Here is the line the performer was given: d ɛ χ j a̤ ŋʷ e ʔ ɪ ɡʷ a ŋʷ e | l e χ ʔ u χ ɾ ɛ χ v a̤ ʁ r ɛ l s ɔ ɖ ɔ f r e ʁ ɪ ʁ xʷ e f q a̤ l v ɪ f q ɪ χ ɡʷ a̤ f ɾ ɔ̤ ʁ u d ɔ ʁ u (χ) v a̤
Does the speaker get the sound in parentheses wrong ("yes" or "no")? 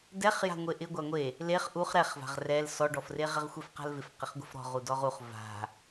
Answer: no